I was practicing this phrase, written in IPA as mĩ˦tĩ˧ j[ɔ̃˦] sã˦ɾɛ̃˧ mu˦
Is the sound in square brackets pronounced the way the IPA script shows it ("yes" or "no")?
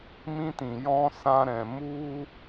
yes